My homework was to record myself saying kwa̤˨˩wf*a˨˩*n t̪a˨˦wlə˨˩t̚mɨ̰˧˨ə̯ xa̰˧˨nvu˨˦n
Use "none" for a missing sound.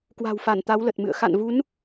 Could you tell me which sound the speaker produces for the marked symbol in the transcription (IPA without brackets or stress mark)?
a˧˩